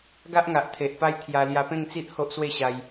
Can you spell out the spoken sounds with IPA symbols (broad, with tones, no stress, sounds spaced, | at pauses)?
ɡ a˦ ʔ ŋ a˨ ʔ t̪ʰ e˨ ʔ p a˧ j t̪ʰ j a˧ l j a˧ p ẽ˥˧ ŋ t͡s i˦ ʔ h o˦ ʔ s w e˥˧ ɕ a˧ j